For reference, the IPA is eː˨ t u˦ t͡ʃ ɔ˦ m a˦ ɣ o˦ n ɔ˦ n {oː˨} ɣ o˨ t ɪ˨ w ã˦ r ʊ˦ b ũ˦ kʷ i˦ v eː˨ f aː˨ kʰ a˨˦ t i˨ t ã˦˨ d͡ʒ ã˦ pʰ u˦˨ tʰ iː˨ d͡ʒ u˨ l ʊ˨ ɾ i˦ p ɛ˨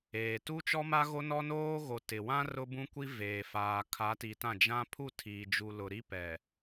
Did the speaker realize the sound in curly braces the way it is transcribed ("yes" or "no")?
no